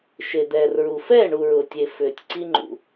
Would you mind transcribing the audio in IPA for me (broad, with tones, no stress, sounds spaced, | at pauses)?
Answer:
ʃ e˨ d̪ ɛː˨ r ɹ u˨ f ɛː˦˨ ɳ u˨ ɹ ʊː˨ tʲ e˨ f ʏː˨ tʲ ǀ i˦ ŋ͡ǃ ṵ˨